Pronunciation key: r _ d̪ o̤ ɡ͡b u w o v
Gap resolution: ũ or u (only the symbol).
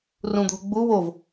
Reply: ũ